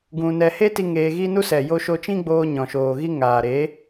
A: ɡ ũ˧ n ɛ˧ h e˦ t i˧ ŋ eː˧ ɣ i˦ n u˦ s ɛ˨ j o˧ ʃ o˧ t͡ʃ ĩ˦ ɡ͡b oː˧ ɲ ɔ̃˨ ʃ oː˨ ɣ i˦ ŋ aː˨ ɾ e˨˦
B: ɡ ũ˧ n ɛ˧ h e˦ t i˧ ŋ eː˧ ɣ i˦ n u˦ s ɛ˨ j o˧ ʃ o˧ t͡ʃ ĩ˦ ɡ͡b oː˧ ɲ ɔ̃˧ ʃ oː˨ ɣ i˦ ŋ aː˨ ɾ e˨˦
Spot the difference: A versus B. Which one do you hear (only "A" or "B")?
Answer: A